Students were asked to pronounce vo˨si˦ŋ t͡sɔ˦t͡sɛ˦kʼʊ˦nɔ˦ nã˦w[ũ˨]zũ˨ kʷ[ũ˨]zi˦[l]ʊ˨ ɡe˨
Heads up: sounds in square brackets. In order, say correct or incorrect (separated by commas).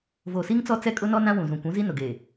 correct, incorrect, incorrect